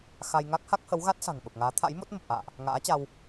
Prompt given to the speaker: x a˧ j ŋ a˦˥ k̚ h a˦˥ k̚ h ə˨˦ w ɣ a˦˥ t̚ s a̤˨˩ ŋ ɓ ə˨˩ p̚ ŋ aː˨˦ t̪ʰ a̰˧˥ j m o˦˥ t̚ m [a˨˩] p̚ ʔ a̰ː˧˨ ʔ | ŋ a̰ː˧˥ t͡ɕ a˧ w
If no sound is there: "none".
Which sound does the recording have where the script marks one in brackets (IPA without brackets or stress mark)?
ə˨˩